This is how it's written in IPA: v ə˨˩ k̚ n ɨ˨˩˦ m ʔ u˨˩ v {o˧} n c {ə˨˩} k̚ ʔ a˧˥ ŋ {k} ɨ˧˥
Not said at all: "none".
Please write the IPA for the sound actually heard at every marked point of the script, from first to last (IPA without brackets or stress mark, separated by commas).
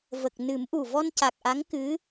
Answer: ɔ˧, a˨˩, k